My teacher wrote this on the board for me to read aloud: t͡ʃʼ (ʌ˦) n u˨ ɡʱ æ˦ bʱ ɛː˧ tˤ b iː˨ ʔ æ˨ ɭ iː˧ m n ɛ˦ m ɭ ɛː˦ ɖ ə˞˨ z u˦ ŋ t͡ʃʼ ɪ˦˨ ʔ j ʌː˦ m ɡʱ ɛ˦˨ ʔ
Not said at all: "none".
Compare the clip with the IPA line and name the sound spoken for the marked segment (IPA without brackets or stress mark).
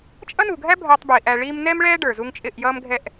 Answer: ʌ˦